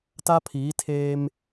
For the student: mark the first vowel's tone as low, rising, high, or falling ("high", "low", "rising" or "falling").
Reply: high